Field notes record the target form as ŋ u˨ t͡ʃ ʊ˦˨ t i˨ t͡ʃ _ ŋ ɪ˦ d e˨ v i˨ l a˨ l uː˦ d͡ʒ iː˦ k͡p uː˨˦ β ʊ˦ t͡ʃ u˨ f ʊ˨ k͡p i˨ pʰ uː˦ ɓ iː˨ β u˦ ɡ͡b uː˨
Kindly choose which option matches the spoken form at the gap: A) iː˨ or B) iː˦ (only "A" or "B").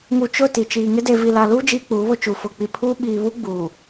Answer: A